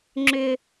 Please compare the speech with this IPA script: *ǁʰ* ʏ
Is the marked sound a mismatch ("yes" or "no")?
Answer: yes